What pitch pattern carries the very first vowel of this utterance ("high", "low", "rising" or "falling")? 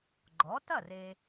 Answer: rising